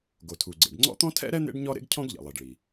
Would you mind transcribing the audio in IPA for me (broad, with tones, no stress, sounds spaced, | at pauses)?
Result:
ɡ o˩ tʰ u˩ ɡ͡ǀ ḛ˩ ɖ ŋ͡ǀ ɔ̰˥ t̪ ɔ̃˥ tʰ ɛ̰˥ ɾ ɛ˥ n̪ ḛ˥ ɖ ɲ ɔ˥ ɾ ḛ˥ ɡ cʰ ɔ̃˥ ɡ ʎ ɛ̰˩ lˠ i˩ ɖ ɭ i˩